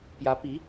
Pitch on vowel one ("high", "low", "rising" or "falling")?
rising